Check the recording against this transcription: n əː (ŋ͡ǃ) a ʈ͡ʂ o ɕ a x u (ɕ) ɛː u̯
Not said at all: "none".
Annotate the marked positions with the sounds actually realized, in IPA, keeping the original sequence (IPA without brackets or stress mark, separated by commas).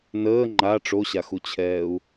ŋ͡ǃ, t͡ɕʰ